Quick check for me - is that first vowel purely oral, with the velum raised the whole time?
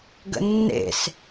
yes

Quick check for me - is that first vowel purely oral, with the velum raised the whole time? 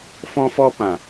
no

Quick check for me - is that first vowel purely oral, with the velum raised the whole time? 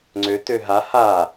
yes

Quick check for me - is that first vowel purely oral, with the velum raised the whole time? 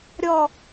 yes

